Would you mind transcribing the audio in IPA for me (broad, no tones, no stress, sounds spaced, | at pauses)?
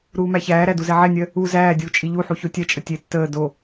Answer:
ɾ uː m æ ç æː ɾ æ d u z ɛ ʕ ɛ nʲ ɜ | u z æː dʲ uː t͡ʃʼ i ʎ u ħ u ç o tʲ ɛ t͡ʃʼ ə tʲ e tː əː d o